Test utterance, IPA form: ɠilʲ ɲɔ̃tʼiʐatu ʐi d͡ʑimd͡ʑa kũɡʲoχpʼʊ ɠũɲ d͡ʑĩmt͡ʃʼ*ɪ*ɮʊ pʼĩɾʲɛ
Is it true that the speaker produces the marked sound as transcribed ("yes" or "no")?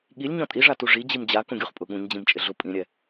yes